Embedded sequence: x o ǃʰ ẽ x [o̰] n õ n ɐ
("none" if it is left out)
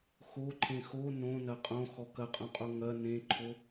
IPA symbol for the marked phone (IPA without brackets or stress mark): o